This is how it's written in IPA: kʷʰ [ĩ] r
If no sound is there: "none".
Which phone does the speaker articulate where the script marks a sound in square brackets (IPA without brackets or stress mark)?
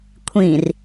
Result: ĩ